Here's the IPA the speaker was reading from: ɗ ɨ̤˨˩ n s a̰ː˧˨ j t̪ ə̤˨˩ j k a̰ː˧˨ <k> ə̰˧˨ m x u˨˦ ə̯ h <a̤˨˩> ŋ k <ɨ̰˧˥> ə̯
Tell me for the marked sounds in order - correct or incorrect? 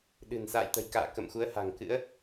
correct, correct, correct

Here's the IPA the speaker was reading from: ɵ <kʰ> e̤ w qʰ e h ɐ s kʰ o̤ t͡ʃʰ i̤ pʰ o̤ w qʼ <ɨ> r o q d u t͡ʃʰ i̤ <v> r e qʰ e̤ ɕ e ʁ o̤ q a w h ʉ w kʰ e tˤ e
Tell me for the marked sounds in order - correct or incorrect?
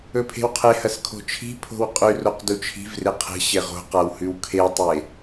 incorrect: pʰ, incorrect: ʉ, correct

